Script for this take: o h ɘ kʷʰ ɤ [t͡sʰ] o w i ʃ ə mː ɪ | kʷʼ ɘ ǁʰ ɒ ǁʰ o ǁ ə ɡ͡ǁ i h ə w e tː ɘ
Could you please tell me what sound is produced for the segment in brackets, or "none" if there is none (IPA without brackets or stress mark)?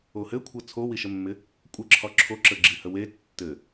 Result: t͡sʰ